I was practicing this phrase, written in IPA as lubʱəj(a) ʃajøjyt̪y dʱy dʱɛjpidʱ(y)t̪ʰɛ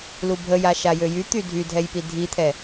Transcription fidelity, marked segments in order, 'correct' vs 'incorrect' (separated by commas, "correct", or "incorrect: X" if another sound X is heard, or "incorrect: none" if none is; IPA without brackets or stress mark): correct, incorrect: i